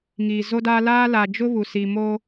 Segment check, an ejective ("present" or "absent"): absent